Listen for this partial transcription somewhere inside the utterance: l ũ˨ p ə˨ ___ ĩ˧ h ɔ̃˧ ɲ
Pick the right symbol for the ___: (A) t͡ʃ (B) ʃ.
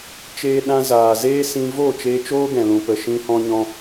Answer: B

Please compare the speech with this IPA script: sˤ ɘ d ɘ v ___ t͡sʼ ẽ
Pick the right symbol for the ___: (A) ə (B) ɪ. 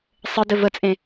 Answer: A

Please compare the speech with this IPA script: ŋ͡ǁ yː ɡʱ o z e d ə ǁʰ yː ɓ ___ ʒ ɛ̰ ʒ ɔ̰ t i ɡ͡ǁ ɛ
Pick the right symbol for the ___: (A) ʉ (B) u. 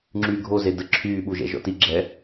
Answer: B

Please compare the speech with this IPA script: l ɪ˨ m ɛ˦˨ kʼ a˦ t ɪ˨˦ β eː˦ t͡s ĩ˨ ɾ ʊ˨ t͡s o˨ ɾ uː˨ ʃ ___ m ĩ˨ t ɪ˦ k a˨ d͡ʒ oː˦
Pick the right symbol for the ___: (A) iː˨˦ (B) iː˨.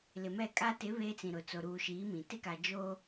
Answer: A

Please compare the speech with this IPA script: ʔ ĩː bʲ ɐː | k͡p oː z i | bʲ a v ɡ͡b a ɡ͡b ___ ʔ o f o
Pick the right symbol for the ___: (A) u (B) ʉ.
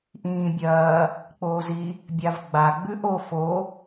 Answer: B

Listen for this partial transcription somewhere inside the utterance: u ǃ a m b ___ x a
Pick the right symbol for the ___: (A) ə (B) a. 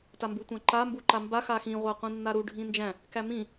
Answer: B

